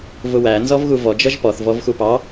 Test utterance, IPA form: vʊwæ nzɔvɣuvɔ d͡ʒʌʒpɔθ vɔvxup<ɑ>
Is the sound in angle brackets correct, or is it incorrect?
correct